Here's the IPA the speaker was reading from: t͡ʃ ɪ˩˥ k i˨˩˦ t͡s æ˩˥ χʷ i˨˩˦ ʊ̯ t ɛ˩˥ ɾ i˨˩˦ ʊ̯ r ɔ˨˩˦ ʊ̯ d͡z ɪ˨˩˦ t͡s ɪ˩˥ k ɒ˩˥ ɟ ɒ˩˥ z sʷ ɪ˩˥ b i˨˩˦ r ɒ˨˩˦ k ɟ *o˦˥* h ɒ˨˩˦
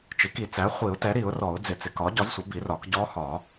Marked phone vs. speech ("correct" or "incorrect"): incorrect